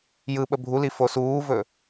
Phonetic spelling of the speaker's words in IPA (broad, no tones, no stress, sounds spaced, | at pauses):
j ɯ ɓ ə bʱ u l i f o s uː v ɵ